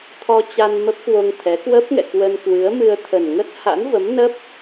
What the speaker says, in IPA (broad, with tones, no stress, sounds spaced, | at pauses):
t̪ʰ ɔ˧ t͡ɕ a˧ n m ə˦˥ p̚ k w o˧ ŋ t̪ʰ ɛ˨˦ k w ə˦˥ p̚ ŋ ɛ̰˧˨ k w ə˧ n k w ɨ˨˦ ə̯ m ɨ˧ ə̯ t̪ʰ ə˨˩ n ŋ ə˦˥ t̚ h a̰˧˥ n v ə˨˦ m n ə˦˥ p̚